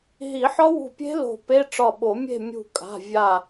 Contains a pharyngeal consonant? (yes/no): yes